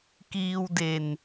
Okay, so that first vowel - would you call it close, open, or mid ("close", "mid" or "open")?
close